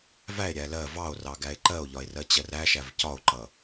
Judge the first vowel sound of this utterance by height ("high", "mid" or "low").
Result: low